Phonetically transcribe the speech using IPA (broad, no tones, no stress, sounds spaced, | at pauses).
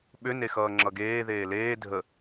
ɓ ʏ n e x ʌː ŋ͡ǁ ʌ ɡ eː ð eː l eː dʱ ə